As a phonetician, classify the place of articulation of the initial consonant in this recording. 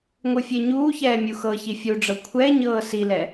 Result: velar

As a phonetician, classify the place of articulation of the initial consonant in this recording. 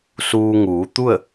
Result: alveolar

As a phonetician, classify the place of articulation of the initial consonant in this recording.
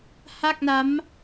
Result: glottal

